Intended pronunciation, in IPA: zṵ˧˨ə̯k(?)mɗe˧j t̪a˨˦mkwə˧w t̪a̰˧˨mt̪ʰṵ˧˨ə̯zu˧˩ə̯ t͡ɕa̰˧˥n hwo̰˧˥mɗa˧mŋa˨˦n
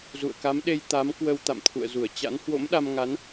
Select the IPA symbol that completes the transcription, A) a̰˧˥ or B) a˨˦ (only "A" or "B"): B